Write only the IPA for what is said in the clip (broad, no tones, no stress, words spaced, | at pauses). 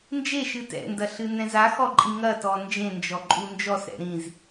nd͡ʒeʃɨ tɛ̰ndɐ ɬɨnɛ̃zaxɔ ǃʼĩŋɐtɔ nd͡ʒẽnd͡ʒɔ ǃʼund͡ʒɔsɾɛ̰ ɾĩz